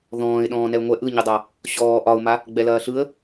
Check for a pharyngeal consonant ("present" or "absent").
absent